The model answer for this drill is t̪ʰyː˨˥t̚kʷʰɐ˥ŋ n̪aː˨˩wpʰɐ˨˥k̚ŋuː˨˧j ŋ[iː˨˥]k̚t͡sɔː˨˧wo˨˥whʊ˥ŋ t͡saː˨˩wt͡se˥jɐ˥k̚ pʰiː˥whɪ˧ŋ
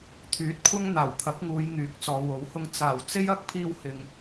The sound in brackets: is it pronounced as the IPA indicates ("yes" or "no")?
no